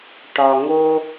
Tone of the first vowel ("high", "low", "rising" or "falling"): low